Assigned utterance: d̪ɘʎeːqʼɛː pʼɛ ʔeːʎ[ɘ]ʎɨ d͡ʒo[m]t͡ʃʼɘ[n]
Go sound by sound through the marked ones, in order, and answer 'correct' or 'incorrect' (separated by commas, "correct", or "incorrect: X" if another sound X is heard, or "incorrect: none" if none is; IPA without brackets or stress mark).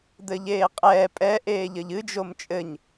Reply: correct, correct, incorrect: ɲ